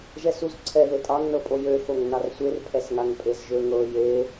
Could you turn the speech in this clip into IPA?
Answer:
ʒ ɛ s u z ǀʰ ɛ ð e tʼ ɑ ŋ n ɤ pʼ o j ø x o ŋ n ɑ r sʷ e r pʰ ɛ s ŋ a ŋ pʼ e z ʒ ø ŋ ɤ j e

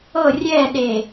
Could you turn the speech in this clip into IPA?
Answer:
ɤ rʲ ɛ ɗ e

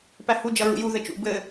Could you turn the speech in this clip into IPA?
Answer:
p æ h u d͡ʒ ʌ ɹ ṵ j u ð ɘ t͡ʃ ṵ b ɘ

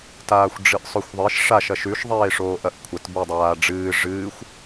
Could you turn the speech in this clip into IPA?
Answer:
t aː xʷ ɖ͡ʐ ɨ ʔ sˤ ɵ xʷ ðˤ e ʃ ʂ a ʃ ɐ ʃ ʉ ʃ ðˤ eː ʂ oː ʔ ɐ ʔ kʷʰ ɐ t b u dˤ aː ɖ͡ʐ ɨː ʐ ɨː xʷ

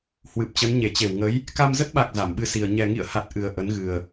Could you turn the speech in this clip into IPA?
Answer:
h w ɨ˨˩ p̚ t͡ɕ ə˨˦ n ɲ e˧˩ t͡ɕ e˧˩ w ŋ ə˨˦ j | k a˧ m z ə˦˥ t̚ ɓ a˨˩ k̚ z a˧˩ m ɓ ɨ˧ s i˨˩ ə̯ ɲ ɛ˨˩ ŋ ḭ˧˨ ə̯ h a˨˩ t̚ ʔ ɨ˨˩ ə̯ ʔ ə˨˦ n ɣ ɨ˨˩ ə̯

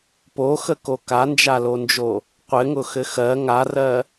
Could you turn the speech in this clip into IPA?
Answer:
p o x ə k o k a n d͡ʒ a l o n d͡ʒ o | qʷ ɘ ŋ ʊ x ɘ x ɜ ŋ a r ɜ

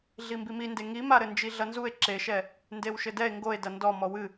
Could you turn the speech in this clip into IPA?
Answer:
ɮ i m b i m i n d e ŋ i m a ɾ ɘ n d͡ʒ i ɮ ɐ n z u e̯ ǁ e ʃ ɛ | n d e w ʃ ɘ d ɛ e̯ ŋ ɡ o e̯ d ɐ n d ɔ m ɔ w ɨ

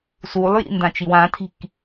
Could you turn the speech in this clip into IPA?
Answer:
s u lˠ j ḭ n d ã t͡ʃ i w ã tʰ i̤ k

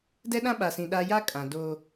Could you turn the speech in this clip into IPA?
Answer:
d ɛ˦ ɗ ã˦ ɓ a˨ s ĩ˨ ɗ a˨ j a˦ kʼ ã˨ d o˦

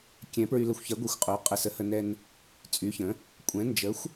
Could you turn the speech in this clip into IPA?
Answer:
kʲ ɛ̃˨˥ p ɹ y˧ l ə˧ xʷ ç ɛ˨˥ ɡʷ ɛ˧ xʷ qʼ o˨˥ qʼ ə˧ s ə˨˥ h ə˧ n ɛ˧ n | t͡sʼ y˨˥ ç ə̃˨˥ | kʷʼ ɛ̃˨˥ n d͡ʒ ə˨˥ xʷ

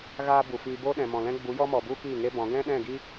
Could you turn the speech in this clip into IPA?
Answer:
ɣ aː˦ b u˨ f iː˧ b o˦ ɗ ɛ̃˨ m ɔ̃˨ l ɛ̃˦ ɡ͡b u˨˦ j ɔ˦ m ɔ˨ b u˦ k iː˦˨ ŋ e˦ b ɔ̃˨˦ ɡ ɛ̃˦ ɗ ɛ̃˦˨ ɡ i˦

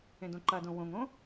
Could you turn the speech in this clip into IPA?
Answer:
ẽ d õ ǃ ɐ d õ w õ ŋ õ

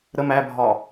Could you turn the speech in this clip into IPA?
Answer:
ɾ ə m æ bʱ ɒ

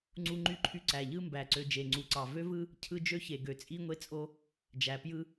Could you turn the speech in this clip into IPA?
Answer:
ŋ͡ǀ u˦ ŋ͡ǃ y˦ ǃʰ y˦ ǀ æ˨ ʎ ɯ˦ m b æ˨ ǀ ø˨ d͡ʒ e˨ ŋ͡ǀ u˨ ǀ ɑ˨ v ø˦ v ɯ˦ | cʰ ɯ˦ d͡ʒ ø˦ ç e˨ ɡ ø˨ t͡sʼ i˦ ŋʷ e˦ t͡sʼ o˦ | d͡ʒ æ˨ p j ɯ˦

